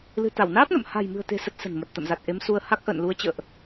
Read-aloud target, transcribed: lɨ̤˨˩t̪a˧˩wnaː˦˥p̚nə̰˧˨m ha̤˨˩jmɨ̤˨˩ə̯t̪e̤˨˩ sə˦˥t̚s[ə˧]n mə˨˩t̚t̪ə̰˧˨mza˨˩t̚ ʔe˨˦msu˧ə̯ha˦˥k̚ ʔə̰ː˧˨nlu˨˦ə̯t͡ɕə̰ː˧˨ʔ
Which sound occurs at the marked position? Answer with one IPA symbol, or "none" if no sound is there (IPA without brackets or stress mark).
ə̤˨˩